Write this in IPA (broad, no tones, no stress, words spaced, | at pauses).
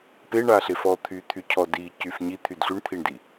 peɳaɬe fɔt̪ʰyt̪ʰy cʰɔdicyf ɲit̪ʰyd ɬyɳt̪ʰiɳdi